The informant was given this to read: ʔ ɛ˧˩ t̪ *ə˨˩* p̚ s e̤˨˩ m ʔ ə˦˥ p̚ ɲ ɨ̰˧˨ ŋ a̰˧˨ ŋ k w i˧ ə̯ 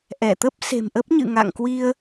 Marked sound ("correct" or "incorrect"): incorrect